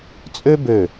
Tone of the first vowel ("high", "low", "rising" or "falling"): high